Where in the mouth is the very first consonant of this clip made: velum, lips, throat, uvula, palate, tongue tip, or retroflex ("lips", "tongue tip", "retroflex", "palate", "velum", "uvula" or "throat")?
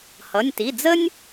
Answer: throat